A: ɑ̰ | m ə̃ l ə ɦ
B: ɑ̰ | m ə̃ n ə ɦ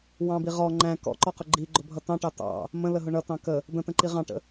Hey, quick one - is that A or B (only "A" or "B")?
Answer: A